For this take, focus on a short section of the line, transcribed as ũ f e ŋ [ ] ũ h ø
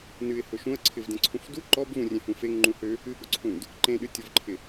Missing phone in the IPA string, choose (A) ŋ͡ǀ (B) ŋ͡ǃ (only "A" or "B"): B